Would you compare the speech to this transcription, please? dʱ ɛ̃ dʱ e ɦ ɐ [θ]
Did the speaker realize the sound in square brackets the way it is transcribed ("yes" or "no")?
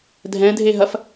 no